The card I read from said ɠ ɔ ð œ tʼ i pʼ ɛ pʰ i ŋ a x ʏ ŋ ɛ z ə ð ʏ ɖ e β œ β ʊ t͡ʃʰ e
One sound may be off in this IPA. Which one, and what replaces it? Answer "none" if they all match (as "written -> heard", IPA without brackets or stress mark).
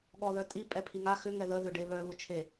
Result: z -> ð